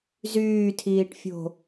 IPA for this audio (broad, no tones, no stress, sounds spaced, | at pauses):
z yː tʰ iː ʈ fʲ o̤